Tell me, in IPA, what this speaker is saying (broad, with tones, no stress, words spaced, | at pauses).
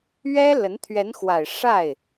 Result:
ɥɛ˥lə˧˥n t̪ʰɥɛ˧˥nxwa˨˩ɪ̯ ʂa˥˩ɪ̯